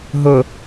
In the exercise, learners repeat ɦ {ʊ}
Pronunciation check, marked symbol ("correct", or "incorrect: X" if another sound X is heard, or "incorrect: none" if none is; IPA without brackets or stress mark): correct